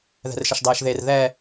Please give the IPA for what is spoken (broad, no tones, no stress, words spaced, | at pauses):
ðɛ̤rʃəʃdˤɛːʃðer ðɛ